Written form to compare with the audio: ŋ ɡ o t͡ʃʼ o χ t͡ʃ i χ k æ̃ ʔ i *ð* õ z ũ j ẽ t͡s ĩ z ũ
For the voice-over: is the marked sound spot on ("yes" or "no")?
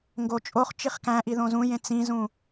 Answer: yes